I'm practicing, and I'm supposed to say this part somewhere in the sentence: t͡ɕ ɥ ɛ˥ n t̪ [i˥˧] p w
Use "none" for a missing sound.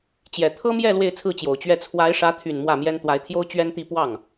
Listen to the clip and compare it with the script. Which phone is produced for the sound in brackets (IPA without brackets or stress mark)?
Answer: i˥˧